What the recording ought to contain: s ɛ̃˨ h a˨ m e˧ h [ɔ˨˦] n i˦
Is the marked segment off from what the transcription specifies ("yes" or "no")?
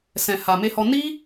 yes